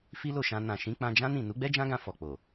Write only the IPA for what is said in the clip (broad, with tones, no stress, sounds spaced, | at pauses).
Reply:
f i˦ l o˦˨ ʃ ã˧ n ã˨ ʃ ĩ˨˦ k͡p ã˧ d͡ʒ ã˦ n ĩ˦˨ n u˨˦ ɡ͡b ɛ˦ d͡ʒ ã˦ ɡ ã˧ f ɔ˨ k͡p o˨